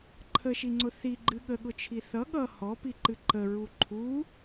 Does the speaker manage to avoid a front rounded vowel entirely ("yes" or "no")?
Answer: yes